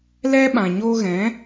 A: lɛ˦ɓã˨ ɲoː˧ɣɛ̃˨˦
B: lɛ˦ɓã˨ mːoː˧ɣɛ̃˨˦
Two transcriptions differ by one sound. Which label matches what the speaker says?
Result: A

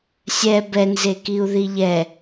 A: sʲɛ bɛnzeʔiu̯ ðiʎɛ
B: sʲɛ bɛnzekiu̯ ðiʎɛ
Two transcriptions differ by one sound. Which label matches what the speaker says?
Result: B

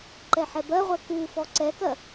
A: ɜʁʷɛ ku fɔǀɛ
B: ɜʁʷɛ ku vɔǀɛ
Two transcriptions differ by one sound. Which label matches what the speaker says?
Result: A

